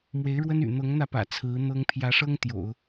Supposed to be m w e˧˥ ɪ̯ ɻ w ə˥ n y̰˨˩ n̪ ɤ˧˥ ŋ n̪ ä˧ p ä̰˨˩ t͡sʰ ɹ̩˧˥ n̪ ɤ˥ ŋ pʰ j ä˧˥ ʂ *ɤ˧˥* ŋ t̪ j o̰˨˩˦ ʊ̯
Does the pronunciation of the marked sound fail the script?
yes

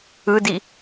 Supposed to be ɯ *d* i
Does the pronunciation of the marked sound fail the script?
no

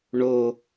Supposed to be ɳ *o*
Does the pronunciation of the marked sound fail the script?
no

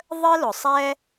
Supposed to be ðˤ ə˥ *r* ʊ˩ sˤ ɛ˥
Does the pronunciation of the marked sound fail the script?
yes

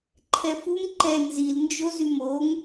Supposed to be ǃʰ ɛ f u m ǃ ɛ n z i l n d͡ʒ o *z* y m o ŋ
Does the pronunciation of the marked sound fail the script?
no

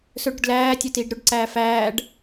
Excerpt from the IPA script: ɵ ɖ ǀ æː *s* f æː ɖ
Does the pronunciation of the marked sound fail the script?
yes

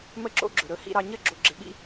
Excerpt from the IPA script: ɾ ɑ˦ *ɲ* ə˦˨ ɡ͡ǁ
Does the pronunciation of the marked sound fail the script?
no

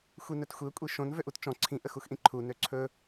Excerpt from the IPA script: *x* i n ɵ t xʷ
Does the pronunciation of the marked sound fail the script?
yes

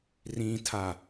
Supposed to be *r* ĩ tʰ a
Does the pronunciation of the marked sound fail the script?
no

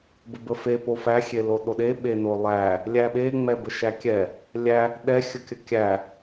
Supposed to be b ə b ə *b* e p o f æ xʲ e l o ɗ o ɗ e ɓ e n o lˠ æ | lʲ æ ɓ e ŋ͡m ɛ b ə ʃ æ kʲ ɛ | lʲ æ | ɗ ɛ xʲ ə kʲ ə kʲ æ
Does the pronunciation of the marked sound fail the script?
yes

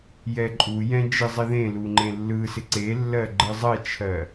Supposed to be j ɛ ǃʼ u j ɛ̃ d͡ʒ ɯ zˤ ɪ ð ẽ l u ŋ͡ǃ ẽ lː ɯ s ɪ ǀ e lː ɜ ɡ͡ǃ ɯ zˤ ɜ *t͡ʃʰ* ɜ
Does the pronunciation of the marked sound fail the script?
no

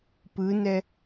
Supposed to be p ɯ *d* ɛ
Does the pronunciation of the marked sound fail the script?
yes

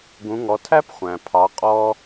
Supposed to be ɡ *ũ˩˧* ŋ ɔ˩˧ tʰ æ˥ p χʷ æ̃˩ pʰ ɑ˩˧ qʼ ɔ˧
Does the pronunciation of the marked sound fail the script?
no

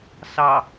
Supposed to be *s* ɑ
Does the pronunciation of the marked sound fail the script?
no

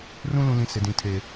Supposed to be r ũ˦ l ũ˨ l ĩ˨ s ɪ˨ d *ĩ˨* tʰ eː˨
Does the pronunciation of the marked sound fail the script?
no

